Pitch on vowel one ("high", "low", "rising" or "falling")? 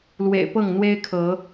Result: low